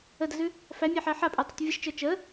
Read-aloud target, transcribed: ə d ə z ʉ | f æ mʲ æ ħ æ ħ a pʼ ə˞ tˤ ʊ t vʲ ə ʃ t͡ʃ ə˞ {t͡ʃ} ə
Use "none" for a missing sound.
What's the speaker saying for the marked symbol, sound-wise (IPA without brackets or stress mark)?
t͡ʃ